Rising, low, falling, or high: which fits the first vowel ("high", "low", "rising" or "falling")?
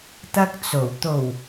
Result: high